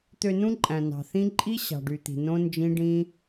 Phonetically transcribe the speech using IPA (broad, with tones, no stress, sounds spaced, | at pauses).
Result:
t̪ ø˧ n ũ˦ ǃʼ æ̃˨ n ɑ̤˨ θ ĩ˦ ǃʼ i˦ ɕ ɑ̤˨ ɖ y˨ t̪ i̤˨ n õ˦ n d͡ʒ ĩ˦ ɖ ĩ˦